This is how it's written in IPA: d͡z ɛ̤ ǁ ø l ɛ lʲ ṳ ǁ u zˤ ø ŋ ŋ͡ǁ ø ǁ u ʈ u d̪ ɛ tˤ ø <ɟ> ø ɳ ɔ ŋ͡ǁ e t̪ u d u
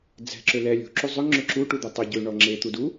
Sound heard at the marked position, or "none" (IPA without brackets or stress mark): ɟ